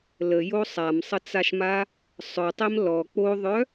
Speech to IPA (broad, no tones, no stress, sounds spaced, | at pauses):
l ə j o sˤ a m sˤ ə t͡s a ʃ m a | sˤ œ tˤ e m l ɔ k͡p o ðˤ œ